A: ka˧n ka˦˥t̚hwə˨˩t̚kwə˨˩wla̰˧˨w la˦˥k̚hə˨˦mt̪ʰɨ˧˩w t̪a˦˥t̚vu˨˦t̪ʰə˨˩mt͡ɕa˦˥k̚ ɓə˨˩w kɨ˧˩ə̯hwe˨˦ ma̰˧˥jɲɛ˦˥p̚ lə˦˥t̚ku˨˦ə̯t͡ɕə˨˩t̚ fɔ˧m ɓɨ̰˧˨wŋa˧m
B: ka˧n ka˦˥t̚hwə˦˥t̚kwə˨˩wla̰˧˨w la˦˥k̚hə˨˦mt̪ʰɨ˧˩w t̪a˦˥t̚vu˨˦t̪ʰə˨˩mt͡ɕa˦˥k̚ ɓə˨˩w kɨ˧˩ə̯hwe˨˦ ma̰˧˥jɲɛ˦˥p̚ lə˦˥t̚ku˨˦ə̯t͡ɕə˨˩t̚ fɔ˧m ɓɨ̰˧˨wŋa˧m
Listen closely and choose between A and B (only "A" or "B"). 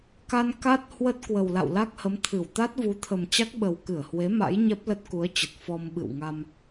B